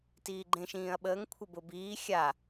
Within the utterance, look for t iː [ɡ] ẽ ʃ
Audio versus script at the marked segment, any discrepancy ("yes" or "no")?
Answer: yes